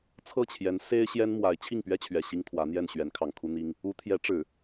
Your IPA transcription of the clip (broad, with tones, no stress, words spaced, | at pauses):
t͡sʰɤ˥˩t͡ɕʰjɛ˧˥n se˥ɪ̯ ɕjɛ˥nmwa˧˥ɪ̯ t͡ɕʰi˥˩ŋpɥɛ˥t͡ɕʰɥɛ˨˩ ɕi˥ŋt̪ʰwä˧˥n̪jɛ˥˩n ɕɥɛ˧˥nkʰɑ˨˩ŋkʰu˥ n̪i˥ŋ | u˧˥t̪ʰjɛ˧˥ ʈ͡ʂɻ̩˨˩˦